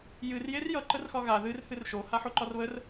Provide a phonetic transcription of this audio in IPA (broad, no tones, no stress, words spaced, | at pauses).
jɨr jerjʌ ǃərxɒɣa ðɨr hɨrʃo haħoǃɒrβər